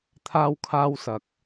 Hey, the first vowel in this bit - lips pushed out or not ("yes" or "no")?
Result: no